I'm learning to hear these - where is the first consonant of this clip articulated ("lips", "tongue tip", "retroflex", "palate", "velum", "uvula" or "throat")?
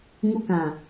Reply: velum